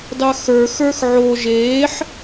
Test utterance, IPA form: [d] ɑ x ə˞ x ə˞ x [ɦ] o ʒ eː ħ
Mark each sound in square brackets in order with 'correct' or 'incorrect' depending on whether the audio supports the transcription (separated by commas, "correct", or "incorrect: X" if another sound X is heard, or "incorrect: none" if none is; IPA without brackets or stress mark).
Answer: correct, incorrect: ʕ